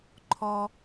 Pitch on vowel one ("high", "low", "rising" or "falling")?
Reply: high